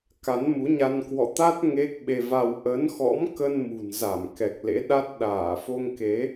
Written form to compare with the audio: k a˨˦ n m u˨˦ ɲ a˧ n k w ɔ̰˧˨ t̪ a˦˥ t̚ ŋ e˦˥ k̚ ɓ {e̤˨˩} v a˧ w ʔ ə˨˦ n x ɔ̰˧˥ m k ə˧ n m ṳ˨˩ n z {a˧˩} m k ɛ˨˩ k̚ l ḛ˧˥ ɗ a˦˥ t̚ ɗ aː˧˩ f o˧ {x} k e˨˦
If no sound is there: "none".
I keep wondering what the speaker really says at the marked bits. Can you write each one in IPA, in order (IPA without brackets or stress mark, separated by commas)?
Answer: e˧, a˧˩, ŋ